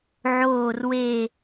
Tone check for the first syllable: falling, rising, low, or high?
falling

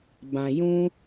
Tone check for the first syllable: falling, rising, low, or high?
low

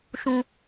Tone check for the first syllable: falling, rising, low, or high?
high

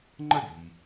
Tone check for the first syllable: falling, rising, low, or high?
high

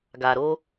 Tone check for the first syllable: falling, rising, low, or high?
low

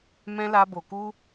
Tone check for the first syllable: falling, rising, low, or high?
high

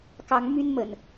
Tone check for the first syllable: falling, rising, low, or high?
rising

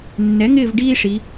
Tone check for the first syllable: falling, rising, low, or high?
rising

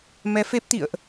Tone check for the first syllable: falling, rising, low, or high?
rising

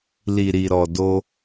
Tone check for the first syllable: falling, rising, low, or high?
low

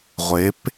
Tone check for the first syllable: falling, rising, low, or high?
rising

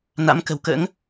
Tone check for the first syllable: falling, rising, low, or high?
rising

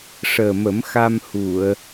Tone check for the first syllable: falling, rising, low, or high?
low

